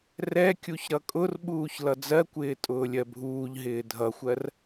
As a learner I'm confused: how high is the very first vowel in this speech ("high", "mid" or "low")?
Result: mid